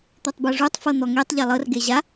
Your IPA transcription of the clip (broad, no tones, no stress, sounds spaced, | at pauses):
t̪ o tˤ b ɤ ʐ u tˤ f ɤ n̪ ɔ ŋ e tˤ ʎ a lˠ ɤ r ɡ e ʑ a